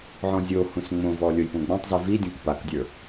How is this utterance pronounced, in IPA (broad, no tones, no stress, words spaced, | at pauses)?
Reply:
ʕɔ̃zʲohũs ŋ͡mõvɔ lʲojpõɡ͡bɔ̃tˤzi vidʲɔ̃k pakdʲə˞